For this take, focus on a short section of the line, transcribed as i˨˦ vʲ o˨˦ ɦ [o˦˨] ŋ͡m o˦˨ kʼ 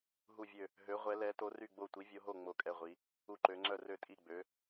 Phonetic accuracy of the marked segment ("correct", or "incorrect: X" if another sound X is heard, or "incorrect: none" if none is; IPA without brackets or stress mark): correct